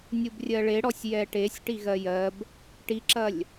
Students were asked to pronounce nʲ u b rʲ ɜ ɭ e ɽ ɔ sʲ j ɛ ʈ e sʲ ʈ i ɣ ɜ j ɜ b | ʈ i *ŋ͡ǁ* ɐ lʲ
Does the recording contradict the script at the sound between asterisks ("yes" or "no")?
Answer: yes